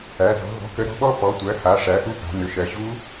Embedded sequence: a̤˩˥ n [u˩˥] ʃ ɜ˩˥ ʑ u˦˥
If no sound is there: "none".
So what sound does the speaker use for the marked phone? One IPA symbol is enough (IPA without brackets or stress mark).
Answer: ʏ˩˥